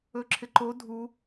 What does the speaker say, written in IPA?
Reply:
ɵ ǁʰ ɪ ǃ o dʱ u

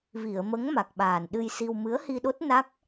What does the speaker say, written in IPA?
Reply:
v i˨˩˨ ə̯ m ə˧˥ ŋ m a˨˩ k̚ ɓ aː˨˩ n ɗ ɨ˧ j s i˧ w m ɨ˧˥ ə̯ h i˧ ɗ o˦˥ t̚ n a˦˥ k̚

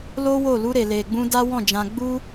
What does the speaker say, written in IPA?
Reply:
l o˦ w o˦˨ l u˧ ɾ e˨ l e˨ ɡ͡b ũ˧ d a˦ w ɔ̃˦˨ d͡ʒ ã˧ ɡ͡b u˦

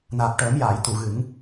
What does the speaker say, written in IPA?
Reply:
n aː˨˩ p̚ ʈ əː˨˩˦ m j aː˨˩˨ j t̪ u˨˩˨ ɣ ɨ˨˩˦ ŋ

